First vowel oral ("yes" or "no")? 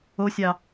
yes